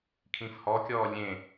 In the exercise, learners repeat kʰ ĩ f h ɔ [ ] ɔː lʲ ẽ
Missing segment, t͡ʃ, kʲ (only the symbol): kʲ